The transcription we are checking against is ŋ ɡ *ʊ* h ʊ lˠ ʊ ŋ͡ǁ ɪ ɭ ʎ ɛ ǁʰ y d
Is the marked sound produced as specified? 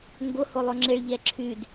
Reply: yes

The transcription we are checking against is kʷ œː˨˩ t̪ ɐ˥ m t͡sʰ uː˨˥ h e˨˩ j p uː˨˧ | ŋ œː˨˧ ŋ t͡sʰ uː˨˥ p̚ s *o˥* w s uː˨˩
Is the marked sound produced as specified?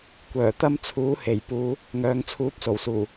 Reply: no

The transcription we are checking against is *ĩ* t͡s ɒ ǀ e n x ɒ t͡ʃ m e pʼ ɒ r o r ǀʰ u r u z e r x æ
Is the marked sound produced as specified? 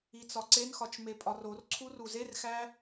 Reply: no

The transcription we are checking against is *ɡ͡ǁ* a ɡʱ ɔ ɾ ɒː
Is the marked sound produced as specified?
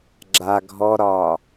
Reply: yes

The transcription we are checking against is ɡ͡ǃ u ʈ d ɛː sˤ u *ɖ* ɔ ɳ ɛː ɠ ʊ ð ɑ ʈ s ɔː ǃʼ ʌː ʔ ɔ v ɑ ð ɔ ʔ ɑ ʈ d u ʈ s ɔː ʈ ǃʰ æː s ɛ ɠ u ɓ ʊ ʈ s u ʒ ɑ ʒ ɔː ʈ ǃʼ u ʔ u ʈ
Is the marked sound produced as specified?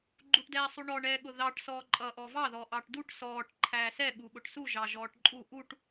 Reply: no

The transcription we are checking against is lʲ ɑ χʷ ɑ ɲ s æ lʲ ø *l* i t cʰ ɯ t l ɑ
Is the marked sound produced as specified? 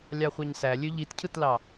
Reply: no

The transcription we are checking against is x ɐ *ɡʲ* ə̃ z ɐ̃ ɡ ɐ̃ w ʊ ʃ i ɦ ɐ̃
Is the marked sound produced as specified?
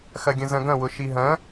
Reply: yes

